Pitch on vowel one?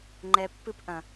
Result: low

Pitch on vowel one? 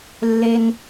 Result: high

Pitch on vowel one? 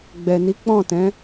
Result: low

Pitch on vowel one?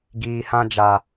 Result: low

